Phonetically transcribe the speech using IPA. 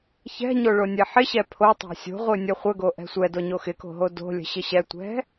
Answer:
ç ɛ̤ ɲ o ɭ o nʲ ɛ ħ ɪ ɕ ɛ pʰ o tˤ o̤ sʲ o̤ ʁʷ ɨ nʲ ə χʷ ə ɡ o ʔ ɛ̤ sʷ ɛ d o ɲ o x ɪ k o̤ ɦ o d o̤ lʲ ə̤ ɕ ɪ ɕ ɛ tʷ ɛ̤

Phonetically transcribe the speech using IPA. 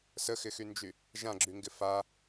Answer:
s ə x ɪ x y n d͡ʒ y | ʒ ã ɡ͡ǁ y ŋ ɡ ɪ f a

